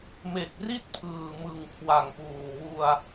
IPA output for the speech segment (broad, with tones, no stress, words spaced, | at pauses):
me˨˩k̚ri˥˩t̚ pʰɯː˨˩mɯ˨˩ŋ kʰwa˨˩ŋpuː˨˩wu˧a̯